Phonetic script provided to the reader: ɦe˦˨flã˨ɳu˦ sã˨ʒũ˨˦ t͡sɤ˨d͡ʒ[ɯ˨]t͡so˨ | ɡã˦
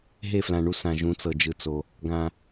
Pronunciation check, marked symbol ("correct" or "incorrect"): correct